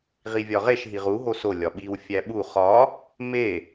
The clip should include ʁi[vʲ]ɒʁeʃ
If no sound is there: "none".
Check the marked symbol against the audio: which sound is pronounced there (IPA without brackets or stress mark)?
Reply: vʲ